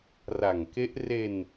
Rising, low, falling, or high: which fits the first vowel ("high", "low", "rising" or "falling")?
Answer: low